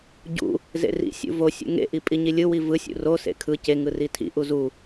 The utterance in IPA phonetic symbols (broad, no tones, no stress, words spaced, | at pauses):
ɟṵ | zḛrḭ sʲṵvo sʲṵŋḛ ʔipʼiɲilʲɯ wivɯ sʲṵro sḛkʰɯ ce ŋɯritʰḭ ʔuzu